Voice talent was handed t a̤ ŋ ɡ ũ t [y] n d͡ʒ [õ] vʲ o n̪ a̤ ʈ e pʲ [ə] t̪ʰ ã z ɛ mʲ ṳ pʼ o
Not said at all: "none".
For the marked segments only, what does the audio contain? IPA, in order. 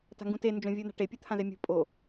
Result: e, õ, ɯ

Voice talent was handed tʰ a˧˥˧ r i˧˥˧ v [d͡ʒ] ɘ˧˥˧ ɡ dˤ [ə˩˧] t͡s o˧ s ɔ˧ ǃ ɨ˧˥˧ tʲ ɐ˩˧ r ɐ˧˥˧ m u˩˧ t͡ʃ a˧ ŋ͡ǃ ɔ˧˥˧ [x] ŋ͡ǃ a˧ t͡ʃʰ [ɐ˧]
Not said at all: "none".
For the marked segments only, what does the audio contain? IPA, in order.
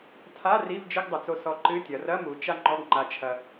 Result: d͡ʒ, ɐ˩˧, ɡ, ɐ˧

